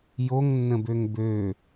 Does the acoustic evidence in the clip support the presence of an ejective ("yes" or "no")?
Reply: no